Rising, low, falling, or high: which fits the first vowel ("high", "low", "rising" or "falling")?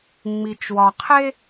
low